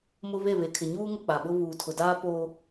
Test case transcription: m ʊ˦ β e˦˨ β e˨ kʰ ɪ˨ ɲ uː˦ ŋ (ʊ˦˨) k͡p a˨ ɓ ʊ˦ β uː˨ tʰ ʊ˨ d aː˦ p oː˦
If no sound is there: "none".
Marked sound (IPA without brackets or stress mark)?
ʊ˦˨